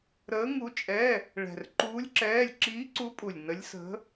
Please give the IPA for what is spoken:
ɾ əː˧˥ ŋ u˧˥ t͡ʃʼ ɛ˧˥˧ | ɭ ɛ̤˨˩ r ǃ uː˧˥ lʲ ǁ ɛː˧˥˧ lʲ ǁ iː˧˥ ǀ u˧˥ pʼ u˨˩ lʲ n ə˧˥ lʲ s ə̤˧˥

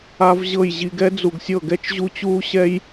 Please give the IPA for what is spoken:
a˦ v ʑ ɤ˦˨ j ʑ i˧ ɡ ɛ˦ d͡z u˨ ɡ sʲ ɤ˦˨ ɡ ɛ˦ t͡ʃ ʑ u˦ t͡ɕ uː˦ ɕ ɛ˦ j

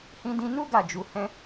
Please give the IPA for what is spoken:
h ĩ˧ d ĩ˧ n u˦ ɡ a˦˨ d͡ʒ u˧ h ɛ̃˦

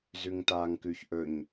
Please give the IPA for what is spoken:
z ʉ ŋ t aː ŋ k ʉ ç ʔ ɵ ɲ

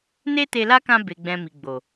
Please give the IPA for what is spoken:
n e˦ t e˧ l a˦ k ã˧ b e˨ ɡ͡b ɛ̃˨ m i˨ ɡ͡b o˨

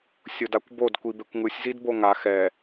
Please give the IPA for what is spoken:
sʲ o d a kʷ b o d kʷ i b e kʷ ŋ ɯ sʲ z i d b o ŋ a x ɛ

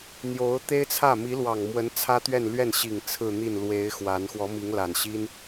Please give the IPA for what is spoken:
n̪ j o˧˥ ʊ̯ t̪ e˥ ɪ̯ t͡sʰ ä˥˩ m i˧˥ l w ɑ˨˩ ŋ m w ə˧˥ n t͡sʰ ä˥ t̪ ɥ ɛ˥˧ n l ɥ ɛ˥˩ n ɕ i˨˩ ŋ t͡sʰ ɹ̩˥˧ n̪ i˥˩ n l w e˧˥ ɪ̯ x w a˧˥ n x w ɔ˧˥ m i˧˥ ŋ l a˨˩ n ɕ i˥ n

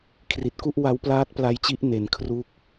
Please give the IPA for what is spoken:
kʰ r i˨˩ t̚ k u˥˩ ʔ w a˦˥ w p l aː˦˥ t̚ p l a˦˥ j t͡ɕ i˦˥ ʔ n e˧ n kʰ r u˥˩ k̚

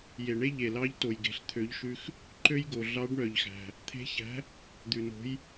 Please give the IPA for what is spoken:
j e˩ ɳ e˦ ʎ e˩ l ɑ˨˥ ʎ t o˩ j ɡ e̤˩ ɬ t̪ʰ ø˨˥ ʎ ʃ ʉ˦ x | ǃ ø˦ j ɡ o˩ ɮ ɑ˨˥ ɖ ɳ œ˩ ʎ x æ̤˩ | t̪ʰ e̤˨˥ ç æ̤˨˥ | d̪ ʉ˩ n o̤˨˥ j

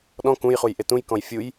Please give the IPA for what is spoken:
ɗ ɔ̃ k ũ j χ u j ʔ e t ũ j k ɔ̃ j fʲ u j

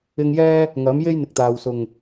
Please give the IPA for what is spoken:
ɪ˧ ŋ j ɛː˥ | ŋ ɐ˨˥ m j e˥ j n̪ ɪ˨ k̚ t̪ aː˨ w s ʊ˨˩ ŋ

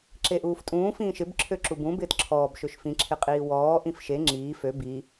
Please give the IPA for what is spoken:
ǁ e ʔ uː f tʼ ũː f ĩː ʃ ɪ b ǁʰ ø ǁ u b ũ b ɪː t ǁʰ ɔː b ʃ ø ʃ f ĩ ǁʰ ɪ qʼ iː w ɔː ʔ ĩ f ʃ e ŋ͡ǁ iː f ø b i

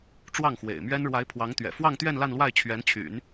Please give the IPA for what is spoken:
ʈ͡ʂ w ɑ˥˩ ŋ x w ḛ˨˩ ɪ̯ m ɥ ɛ˥ n ɻ w a˧˥ ɪ̯ pʰ w ɑ˧˥ ŋ t̪ ɥ ɛ̰˨˩ f w ɑ˥˧ ŋ t̪ ɥ ɛ˥˧ n l a˥˧ n l w a˥˩ ɪ̯ t͡ɕʰ ɥ ɛ˧˥ n t͡ɕʰ y̰˨˩˦ n

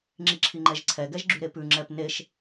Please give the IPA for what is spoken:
ŋ͡ǁ i ǁʰ i ŋ͡ǃ ɛ ʒ ǀʰ ɛ ɡ ɛ ʒ ɡ͡ǁ y ɾ e p ʉ ŋ͡ǁ ɛ p n e ʃ

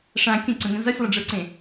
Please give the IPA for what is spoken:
ʂ ã kʲ ə̃ ǀ ə̃ ŋ ə̃ z ʌ sʲ lˠ ə ɖ͡ʐ ə˞ ǀ ẽ

